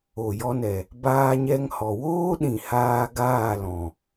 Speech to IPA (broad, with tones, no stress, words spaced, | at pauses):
o˨ jɔ˧nɛ˨ | baː˧ɲɛ˧ŋhɔ˨woː˦ ɗĩ˨haː˧ ɡaː˦˨lɔ̃˨